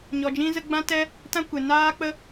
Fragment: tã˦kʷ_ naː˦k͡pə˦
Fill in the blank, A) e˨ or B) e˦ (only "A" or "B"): A